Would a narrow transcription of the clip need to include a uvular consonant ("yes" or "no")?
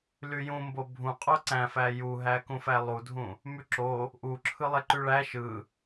yes